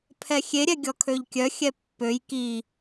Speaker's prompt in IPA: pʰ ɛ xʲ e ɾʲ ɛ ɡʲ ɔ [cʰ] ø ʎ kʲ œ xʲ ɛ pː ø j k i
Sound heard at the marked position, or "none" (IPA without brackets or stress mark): kʰ